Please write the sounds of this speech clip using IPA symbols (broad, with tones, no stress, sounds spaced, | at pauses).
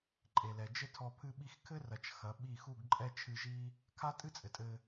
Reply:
ǃʼ e˨ l ɛ˨ d͡ʒ ɘ˦ tʰ ɔ˧ pʰ ɨ˧ ɓ i˧ x kʰ ɘ˦ r ɐ˨ t͡ʃ x ɐ˨˦ ɓ i˦˨ x u˦˨ ɡ ǃʼ ɛ˦ t͡ʃʰ ɨ˧ ʒ i˦ | kʰ a˦ tʼ ɨ˦ t͡sʼ ɘ˨ tʼ ɘ˧